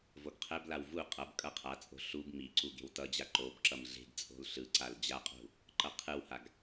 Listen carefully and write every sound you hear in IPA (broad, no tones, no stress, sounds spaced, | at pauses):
v o ɡ qʰ ɛ b l a w v u qʼ ʌ b kʼ ʌ qʰ a t͡sʼ o̤ ɬ u b m i ǀ u ɡ e̤ w t ʌ d͡ʑ a ǃ o b ǁ ʌ m ɮ e̤ ɡ t͡sʼ o̤ l ɬ ɯ ǀ a l d͡ʑ a qʼ ṳ | ǃ ʌ qʰ ɯ w h a ɡ